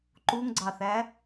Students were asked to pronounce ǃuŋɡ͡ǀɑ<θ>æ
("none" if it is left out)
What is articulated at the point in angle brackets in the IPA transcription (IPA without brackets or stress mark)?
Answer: θ